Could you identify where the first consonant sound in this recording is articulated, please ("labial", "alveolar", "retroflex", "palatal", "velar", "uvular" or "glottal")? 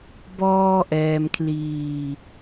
labial